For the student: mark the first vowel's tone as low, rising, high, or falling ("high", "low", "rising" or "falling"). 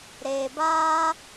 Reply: low